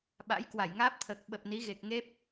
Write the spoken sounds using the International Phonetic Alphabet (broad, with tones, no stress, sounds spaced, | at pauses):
ɓ a̰˧˥ j k w a˧˩ j ŋ aː˦˥ p̚ t̪ʰ əː˨˩ k̚ ɓ ə˨˩ p̚ n i˨˦ ɣ e˨˩ k̚ ŋ e˦˥ p̚